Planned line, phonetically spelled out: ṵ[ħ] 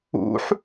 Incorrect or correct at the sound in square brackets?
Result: correct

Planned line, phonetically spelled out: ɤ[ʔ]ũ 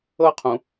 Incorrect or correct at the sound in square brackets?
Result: incorrect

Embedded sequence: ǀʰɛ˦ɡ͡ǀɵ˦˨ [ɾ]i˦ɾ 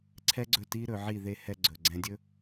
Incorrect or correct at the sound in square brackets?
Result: incorrect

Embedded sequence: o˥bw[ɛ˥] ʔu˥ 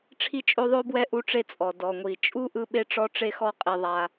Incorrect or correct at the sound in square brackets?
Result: correct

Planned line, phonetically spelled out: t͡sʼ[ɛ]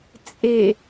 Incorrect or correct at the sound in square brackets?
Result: incorrect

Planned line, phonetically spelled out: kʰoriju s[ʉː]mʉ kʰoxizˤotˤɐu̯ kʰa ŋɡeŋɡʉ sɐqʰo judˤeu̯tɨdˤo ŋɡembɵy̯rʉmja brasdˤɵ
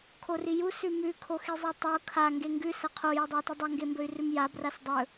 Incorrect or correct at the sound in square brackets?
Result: incorrect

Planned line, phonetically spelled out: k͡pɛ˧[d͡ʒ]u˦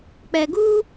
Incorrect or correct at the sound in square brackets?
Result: incorrect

